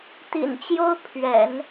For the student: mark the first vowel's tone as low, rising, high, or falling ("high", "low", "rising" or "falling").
low